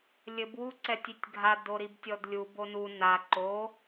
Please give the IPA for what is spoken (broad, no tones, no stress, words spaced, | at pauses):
lʲɘb wuǀɛtʲitʲɡʱa doɾibtʲɔdlʲu bonu na ǃo